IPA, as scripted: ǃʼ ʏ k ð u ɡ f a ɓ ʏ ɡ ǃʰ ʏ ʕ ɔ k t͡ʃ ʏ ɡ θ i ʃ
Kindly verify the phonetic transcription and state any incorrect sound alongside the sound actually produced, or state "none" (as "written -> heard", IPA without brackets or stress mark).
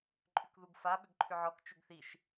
none